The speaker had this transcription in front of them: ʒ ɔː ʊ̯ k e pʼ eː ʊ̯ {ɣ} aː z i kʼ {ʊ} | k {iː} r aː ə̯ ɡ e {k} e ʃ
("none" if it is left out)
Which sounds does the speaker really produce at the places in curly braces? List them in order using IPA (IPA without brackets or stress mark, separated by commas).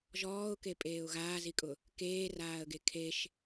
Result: ɣ, ʊ, eː, kʰ